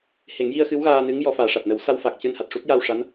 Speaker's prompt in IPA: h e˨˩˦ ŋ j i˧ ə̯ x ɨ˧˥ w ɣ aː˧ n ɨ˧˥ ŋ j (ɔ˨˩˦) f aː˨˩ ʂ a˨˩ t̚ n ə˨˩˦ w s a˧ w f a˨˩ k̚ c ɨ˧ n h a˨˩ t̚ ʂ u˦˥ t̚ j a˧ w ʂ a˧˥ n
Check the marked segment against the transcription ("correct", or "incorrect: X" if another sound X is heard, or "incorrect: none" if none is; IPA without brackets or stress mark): correct